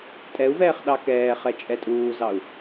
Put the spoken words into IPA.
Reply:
tʼ ɛ u̯ v ɛː χ ɗ ɑ k ɛː χ ɛ t͡ʃʼ ɛ tʼ uː z ɑ u̯

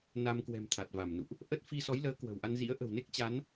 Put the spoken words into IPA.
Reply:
n a˧ m k w ɛ̤˨˩ m t̪ʰ a˨˩ t̚ v a˧˩ m n ṵ˧˨ ʔ | ʔ ə˦˥ t̚ f i˧ s ɔ˨˦ j l əː˨˦ k w ə̤˨˩ w ʔ a˧ n z ḭ˧˥ ə̯ ʔ ə̤˨˩ w n e˦˥ k̚ t͡ɕ a˨˦ n

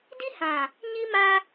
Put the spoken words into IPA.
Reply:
d i˦ h ã˨ | ɲ i˦ m a˦

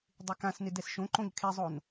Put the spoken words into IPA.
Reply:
dˤ ɪ k ã s n ɪ d ɛ s ʃ õ ǃ õ ʎ kʰ e zˤ o n

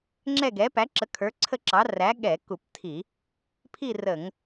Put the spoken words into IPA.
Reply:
ŋ͡ǁ ɛ˥˧ ɡ ɛ˨˥ p æ˨˥ ǁ ə˨˥ kʰ ə˞˨˥ ǀʰ ə˥˧ ǁ ɑ˨˥ r æ˨˥ ɠ ɛ˧˩˧ k u˧˩˧ p tʰ i˧˩˧ | pʰ i˥˧ r ə˧˩˧ ŋ

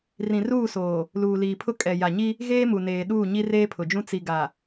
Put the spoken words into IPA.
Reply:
r ĩ˨ r uː˦˨ s oː˨ | l uː˨ l iː˨ pʰ ʊ˦ kʼ ɛ˨ j a˨ ɲ i˦ | ɣ eː˦ m u˨ n eː˨ ɗ uː˦˨ ɲ i˦ r eː˦ pʰ ʊ˨ d͡ʒ ũ˦ t͡s i˨ ɡ a˨

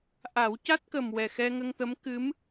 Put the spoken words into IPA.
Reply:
ʔ a˨˩˦ w c a˦˥ t̚ k ə˨˩ m w ɛ˨˩ x ɛ˧ ŋ ə˧ ŋ t̪ ə˧˥ m k ɨ˧˥ m

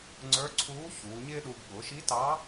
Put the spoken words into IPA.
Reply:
ŋ͡ǀ ə˞˧˥ ǀʰ uː˧˥ ç uː˩˧ ɲ ɪː˥ ɗ u˧ ɡ ɠ ʊː˩˧ ʃ i˧˥ t ɑː˧˥

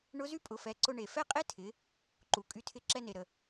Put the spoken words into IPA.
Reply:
ɳ ʊ˧˥ z y˥ pʼ ʊ˩˧ f ɛ˩˧ ǀ ʊ˧ ɳ e˩ f ɛ˥ qʼ e˥ tʰ ɪ˩˧ | ǃ u˩ kʼ y˧ tʰ ɪ˧ ǁ ɛ˧ n e˩ ɾ ə˩

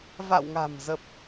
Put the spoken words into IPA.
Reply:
v a̰˧˨ w ŋ a̤˨˩ m z ə˨˩ p̚

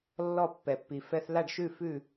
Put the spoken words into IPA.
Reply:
lː ɔ˥˩ pː ɛ˩ pː i˩ f ɛ˧ θ l a˥˩ ɖ ʃ ʉ˥˩ f ʉ˥˩

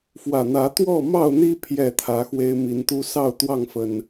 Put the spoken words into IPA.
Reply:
f w ä˨˩ n̪ ä˨˦ t̪ w ɔ˥˨ m ɑ˥˨ ʊ̯ n̪ i˦ pʰ j ɛ˥˨ t̪ʰ ä˨˦ x w e˦ ɪ̯ m i˨˦ n t̪ u˦ s ɑ˥˨ ʊ̯ t̪ w ɑ˥˨ ŋ f ə˨˩ n

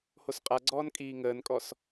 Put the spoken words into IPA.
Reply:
h o s qʼ a ɡ͡ǀ ɔː n kʼ iː ŋ əː n kʼ ɔ s

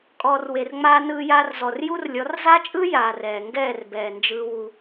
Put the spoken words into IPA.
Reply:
kʼ ɔː˨ r w e˨ r ŋ͡m aː˧ n ɯː˧ j aː˧ r z ɔ˨ r j u˦ r lʲ ɔ˨˦ r z a˦ t͡ʃʼ ɯ˦ j aː˨ r ɛː˨ ŋ ɡ ɛː˦˨ r b ɛː˨ n d͡ʒ ɯː˧ w u˧

